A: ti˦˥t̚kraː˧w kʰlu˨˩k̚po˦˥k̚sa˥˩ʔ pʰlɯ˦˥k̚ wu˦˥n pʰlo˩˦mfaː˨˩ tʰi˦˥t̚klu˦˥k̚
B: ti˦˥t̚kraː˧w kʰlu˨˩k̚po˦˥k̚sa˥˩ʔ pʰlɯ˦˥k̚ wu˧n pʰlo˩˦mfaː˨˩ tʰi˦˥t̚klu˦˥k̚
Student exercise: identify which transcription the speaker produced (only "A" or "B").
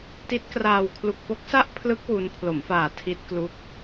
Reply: A